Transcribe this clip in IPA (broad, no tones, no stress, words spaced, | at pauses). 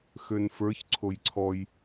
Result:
xønfə˞ç ǀʰojǀʰɔj